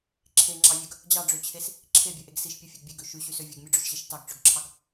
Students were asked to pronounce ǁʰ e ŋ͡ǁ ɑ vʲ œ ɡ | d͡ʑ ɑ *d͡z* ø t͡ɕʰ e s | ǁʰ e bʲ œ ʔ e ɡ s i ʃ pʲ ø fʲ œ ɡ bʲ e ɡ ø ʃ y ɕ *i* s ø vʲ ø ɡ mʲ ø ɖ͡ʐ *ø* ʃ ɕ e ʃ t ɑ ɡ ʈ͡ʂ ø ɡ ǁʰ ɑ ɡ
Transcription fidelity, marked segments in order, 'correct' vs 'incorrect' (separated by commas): incorrect, incorrect, correct